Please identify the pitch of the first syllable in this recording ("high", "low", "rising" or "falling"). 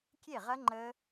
falling